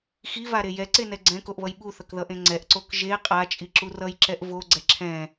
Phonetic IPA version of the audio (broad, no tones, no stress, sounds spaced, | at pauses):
x i v a ɾ e j ɛ ǀ e n ɛ ɡ͡ǀ ɛ̃ k o ʔ β ʌ j ɓ u θ ʌ k ð ʌ ʔ ẽ ŋ͡ǀ ɛ ʔ ǀ o k ʒ e qʼ a t͡ʃʼ i ǁ u r ʌ j ǁ ɛ ʔ v o ɡ͡ǀ ɛ ǁʰ ɛ̃